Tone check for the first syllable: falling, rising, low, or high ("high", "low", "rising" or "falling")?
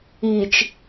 low